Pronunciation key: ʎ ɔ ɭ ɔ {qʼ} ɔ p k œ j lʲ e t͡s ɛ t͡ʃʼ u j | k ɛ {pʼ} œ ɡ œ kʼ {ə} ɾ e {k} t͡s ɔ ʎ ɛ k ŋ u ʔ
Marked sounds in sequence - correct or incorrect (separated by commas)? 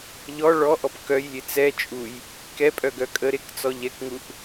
incorrect, correct, correct, correct